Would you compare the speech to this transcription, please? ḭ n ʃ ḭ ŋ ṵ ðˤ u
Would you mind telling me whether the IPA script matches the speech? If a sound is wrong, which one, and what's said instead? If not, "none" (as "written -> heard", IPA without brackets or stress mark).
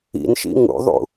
u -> ṵ